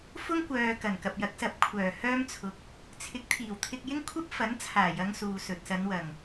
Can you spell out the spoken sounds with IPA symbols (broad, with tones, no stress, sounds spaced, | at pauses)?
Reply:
f ʊ˥ ŋ kʷ œː˨ k ɐ˨˩ n k ɐ˨ p̚ j ɐ˨˥ k̚ s ɐ˨ p̚ kʷʰ œː˨˩ h œː˥ m t͡sʰ ʊ˨ k̚ | t͡sʰ ɪ˨˥ k̚ t̪ʰ iː˨˩ w t̪ʰ ɪ˧ k̚ j ɪ˥ ŋ kʷʰ ɐ˥ p̚ f ɐ˨˥ n t͡sʰ aː˨˩ j ɐ˨˧ ŋ s uː˨ s ɵ˨ t̚ s ɐ˨˧ n w ɐ˨˩ ŋ